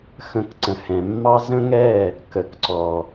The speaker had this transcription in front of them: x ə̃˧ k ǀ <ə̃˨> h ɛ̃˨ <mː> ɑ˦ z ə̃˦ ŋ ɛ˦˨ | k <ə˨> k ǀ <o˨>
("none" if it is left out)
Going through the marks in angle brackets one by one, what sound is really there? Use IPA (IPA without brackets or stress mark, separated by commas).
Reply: ə̃˨, mː, ə˨, ɔ˨